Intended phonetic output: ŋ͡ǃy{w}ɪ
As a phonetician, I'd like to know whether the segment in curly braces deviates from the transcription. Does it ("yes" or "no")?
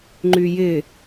yes